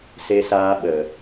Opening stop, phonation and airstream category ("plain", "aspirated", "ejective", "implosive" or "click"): implosive